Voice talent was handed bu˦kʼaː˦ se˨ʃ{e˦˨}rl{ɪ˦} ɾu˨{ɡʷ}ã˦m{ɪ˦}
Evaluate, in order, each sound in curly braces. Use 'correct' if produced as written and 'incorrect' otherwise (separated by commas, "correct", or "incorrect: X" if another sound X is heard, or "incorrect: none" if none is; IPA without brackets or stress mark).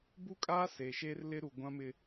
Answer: incorrect: e˦, correct, correct, correct